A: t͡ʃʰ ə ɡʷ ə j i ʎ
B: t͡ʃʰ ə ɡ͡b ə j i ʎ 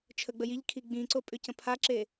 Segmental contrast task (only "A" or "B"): B